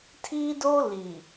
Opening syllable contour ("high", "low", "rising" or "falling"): high